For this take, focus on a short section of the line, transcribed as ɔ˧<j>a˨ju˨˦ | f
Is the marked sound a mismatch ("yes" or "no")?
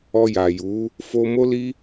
no